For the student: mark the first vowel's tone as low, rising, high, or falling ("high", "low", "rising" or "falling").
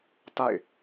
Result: falling